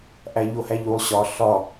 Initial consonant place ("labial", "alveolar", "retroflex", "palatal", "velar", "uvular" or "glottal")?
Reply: glottal